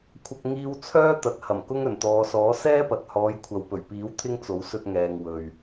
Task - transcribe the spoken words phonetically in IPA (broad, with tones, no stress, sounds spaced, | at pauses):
kʷʰ ɐ˧ k̚ ŋ iː˧ w t͡sʰ œː˥ t̪ ɐ˨ t̚ h ɐ˨˩ m k ʊ˥ ŋ ɵ˨˩ n t̪ ɔː˨˧ s ɔː˨˥ s ɛː˥ p ɐ˨ t̚ h ɔː˨˧ j kʷʰ ɐ˨ w p ɵ˨˩ ɥ p iː˨˥ w t̪ʰ ɪ˥ ŋ t͡s o˨˥ w s ɵ˧ t̚ ŋ ɛː˨ ŋ w ɵ˨ ɥ